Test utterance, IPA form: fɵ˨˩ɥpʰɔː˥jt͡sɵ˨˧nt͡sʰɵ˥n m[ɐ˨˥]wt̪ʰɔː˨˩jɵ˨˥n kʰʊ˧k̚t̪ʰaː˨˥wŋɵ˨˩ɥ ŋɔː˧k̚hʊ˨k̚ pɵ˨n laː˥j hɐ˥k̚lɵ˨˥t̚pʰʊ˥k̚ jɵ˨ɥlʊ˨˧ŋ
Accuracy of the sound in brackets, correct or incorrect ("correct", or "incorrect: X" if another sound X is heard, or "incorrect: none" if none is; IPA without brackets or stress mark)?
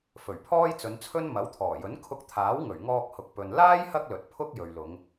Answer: correct